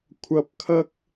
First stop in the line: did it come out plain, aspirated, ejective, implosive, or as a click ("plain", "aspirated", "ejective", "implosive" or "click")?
aspirated